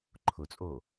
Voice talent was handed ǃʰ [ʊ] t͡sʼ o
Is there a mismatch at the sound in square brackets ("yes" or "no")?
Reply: no